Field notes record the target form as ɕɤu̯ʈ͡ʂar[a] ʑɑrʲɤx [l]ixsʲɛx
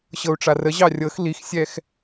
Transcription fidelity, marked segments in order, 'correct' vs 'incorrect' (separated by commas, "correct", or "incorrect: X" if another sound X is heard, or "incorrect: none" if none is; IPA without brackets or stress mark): incorrect: ə, correct